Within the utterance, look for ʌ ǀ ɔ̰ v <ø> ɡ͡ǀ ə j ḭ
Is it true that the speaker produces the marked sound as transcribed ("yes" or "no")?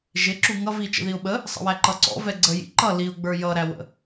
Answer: no